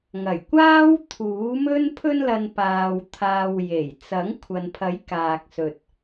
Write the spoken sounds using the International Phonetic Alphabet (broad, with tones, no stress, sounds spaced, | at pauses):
ŋ ɐ˨˩ j kʷ aː˥ w t̪ʰ uː˨˥ m ɵ˥ n pʰ ɵ˧ n l ɐ˨ n p aː˨ w t̪ʰ aː˨ w j e˨˩ j t͡s ɐ˨˥ ŋ kʷʰ ɐ˨ n pʰ ɐ˨˥ j k aː˨ k̚ s ɵ˨ t̚